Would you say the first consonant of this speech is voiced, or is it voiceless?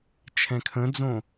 voiceless